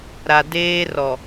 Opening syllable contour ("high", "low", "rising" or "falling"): low